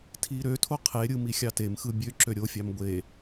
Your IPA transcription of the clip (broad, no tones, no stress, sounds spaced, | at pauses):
tʰ i ɾ ø tʰ o qʰ e ɾʲ ɯ m i xʲ ɑ t e m x ɯ bʲ ø ǁ ø ɾʲ o fʲ ɑ m ɡʷ e